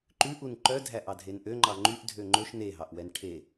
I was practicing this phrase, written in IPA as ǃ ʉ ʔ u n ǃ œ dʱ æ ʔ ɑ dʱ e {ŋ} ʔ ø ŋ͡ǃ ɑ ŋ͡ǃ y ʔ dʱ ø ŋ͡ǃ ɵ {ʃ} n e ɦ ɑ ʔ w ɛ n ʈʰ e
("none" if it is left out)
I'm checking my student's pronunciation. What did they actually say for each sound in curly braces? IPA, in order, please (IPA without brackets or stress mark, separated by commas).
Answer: n, ʃ